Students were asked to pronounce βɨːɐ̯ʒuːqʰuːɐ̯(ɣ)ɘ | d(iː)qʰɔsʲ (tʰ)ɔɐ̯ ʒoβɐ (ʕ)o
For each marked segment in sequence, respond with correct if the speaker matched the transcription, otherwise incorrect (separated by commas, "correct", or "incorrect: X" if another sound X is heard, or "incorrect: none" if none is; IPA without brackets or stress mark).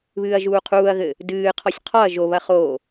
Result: correct, incorrect: ɨː, incorrect: qʰ, incorrect: χ